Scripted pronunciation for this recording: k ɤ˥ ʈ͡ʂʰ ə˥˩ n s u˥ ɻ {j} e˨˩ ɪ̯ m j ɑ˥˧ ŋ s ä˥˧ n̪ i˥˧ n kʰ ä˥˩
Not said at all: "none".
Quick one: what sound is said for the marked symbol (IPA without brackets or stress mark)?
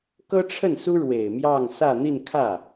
w